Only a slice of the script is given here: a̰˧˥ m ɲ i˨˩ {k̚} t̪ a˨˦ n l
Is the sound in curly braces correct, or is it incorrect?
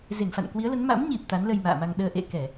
incorrect